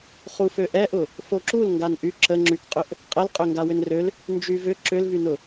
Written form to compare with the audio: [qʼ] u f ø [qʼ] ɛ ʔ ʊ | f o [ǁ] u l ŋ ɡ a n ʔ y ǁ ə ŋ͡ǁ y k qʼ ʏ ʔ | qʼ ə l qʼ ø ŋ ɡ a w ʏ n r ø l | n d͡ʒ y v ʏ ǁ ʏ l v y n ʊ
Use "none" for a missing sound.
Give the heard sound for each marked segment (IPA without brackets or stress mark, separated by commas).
χ, ʔ, ǁ